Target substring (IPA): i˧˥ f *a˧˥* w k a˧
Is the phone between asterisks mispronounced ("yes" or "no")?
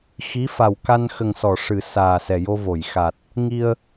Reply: yes